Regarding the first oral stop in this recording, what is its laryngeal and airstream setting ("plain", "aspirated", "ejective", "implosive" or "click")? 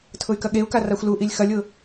aspirated